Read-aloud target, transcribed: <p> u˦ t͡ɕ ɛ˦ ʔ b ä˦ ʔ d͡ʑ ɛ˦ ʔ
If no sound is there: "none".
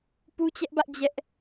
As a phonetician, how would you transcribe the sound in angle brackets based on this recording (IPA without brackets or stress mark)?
p